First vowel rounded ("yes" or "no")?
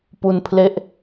yes